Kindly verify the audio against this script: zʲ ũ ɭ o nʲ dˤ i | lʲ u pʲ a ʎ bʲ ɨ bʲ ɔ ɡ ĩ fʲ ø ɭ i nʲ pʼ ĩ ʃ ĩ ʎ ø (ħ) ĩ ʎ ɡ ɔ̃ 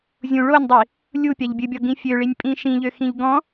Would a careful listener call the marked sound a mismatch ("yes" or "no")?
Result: yes